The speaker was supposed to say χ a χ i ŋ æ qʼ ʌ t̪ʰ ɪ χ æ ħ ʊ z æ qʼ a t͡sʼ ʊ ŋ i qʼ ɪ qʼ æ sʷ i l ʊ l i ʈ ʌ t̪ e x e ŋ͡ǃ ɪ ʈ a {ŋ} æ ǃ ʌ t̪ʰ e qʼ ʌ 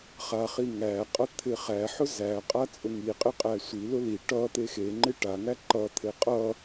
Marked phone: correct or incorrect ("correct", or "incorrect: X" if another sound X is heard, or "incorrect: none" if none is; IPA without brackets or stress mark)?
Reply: correct